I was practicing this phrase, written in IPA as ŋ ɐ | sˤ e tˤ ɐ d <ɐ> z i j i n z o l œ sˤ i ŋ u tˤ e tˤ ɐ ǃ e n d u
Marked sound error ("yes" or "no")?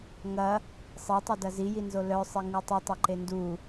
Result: no